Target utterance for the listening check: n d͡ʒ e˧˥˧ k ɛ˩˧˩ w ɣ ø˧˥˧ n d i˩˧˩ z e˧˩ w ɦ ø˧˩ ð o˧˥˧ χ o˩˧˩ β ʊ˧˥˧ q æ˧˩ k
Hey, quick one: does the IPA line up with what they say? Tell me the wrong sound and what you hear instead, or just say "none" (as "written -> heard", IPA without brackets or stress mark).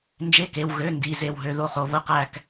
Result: ɛ˩˧˩ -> e˩˧˩